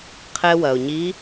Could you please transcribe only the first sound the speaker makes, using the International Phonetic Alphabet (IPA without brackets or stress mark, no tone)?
qʰ